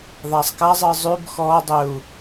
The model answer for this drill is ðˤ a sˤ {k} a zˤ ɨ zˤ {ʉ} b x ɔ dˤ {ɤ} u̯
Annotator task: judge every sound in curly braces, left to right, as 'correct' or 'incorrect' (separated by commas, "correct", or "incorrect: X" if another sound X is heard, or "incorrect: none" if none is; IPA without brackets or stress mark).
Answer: correct, correct, incorrect: ɵ